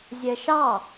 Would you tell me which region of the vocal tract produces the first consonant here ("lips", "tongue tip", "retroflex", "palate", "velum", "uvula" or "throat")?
tongue tip